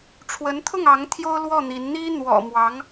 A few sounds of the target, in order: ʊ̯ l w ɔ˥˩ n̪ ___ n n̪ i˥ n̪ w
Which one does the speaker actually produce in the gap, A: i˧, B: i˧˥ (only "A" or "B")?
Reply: B